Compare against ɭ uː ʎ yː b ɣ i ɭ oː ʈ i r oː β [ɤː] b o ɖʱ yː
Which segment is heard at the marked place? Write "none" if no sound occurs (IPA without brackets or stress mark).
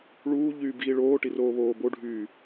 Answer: oː